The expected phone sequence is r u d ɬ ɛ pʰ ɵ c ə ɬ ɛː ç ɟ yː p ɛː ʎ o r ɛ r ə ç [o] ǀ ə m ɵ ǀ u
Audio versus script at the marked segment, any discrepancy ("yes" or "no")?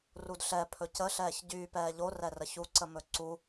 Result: yes